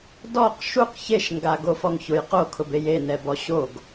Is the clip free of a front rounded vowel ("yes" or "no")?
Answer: yes